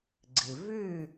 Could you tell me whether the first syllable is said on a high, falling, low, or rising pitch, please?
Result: low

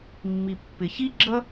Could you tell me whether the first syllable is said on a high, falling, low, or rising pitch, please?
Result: low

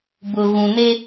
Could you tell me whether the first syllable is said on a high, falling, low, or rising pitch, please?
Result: low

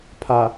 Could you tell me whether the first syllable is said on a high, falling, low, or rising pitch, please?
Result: low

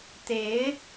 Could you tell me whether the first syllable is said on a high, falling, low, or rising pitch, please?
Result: rising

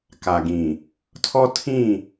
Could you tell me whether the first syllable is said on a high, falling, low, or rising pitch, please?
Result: low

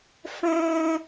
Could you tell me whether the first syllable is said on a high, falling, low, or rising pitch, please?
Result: high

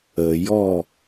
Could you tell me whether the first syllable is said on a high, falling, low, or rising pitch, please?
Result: low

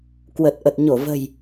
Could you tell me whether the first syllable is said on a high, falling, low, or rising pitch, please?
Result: low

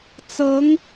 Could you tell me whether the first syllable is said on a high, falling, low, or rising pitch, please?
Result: rising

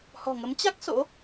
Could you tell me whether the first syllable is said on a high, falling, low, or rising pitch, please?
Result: low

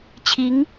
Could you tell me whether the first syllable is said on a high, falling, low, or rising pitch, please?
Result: rising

